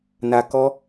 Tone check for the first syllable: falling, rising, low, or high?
low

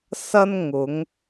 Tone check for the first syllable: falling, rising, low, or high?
high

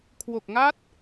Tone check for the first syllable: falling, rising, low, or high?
low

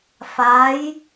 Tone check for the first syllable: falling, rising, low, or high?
rising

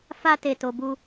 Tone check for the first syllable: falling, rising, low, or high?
high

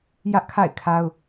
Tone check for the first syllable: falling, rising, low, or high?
high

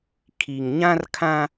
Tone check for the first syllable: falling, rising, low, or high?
low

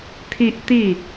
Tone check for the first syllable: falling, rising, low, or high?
high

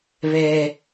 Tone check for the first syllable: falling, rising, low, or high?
high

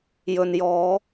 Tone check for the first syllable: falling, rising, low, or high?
low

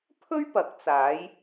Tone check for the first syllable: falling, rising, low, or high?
high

